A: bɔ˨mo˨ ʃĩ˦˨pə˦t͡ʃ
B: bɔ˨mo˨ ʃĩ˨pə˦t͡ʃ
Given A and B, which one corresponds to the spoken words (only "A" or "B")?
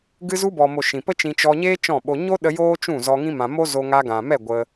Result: B